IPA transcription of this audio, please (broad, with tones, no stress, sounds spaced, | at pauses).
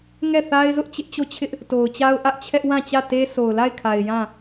ŋ ɛ˦˨ θ a˦ ɪ̯ z ʊ˦ ʔ t͡ɕ ɪ˦ ʔ t͡ɕ o˦˨ t͡ɕʰ ɪ˦ ʔ | t o˨ ʊ̯ t͡ɕ a˦ ʊ̯ ʔ ä˦ ʔ t͡ɕʰ ɛ˦ ʔ w ã˦˨ t͡ɕ ä˦˨ t e˦ s o˨ ʊ̯ l a˦˨ ɪ̯ kʰ a˨ ɪ̯ j ã˦˨